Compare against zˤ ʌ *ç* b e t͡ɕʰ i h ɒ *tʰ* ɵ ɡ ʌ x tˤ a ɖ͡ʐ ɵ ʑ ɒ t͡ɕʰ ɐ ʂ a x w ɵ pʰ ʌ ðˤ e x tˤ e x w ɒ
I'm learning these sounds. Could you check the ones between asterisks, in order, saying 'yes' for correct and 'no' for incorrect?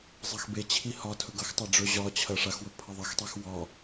no, yes

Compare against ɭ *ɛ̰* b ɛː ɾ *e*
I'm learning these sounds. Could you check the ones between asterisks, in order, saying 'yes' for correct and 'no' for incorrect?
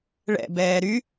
yes, no

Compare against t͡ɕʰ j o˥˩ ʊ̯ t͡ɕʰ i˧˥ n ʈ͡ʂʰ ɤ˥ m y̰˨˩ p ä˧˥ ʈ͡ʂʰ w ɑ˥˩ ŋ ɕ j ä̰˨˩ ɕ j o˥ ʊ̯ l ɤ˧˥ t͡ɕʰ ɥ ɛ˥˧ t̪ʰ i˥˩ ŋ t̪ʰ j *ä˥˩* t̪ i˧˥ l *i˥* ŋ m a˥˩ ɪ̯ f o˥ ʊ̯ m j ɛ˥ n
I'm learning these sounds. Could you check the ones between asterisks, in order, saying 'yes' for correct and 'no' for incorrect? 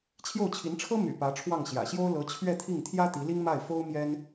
no, yes

